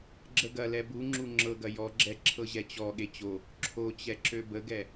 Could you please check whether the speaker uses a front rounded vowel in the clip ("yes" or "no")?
yes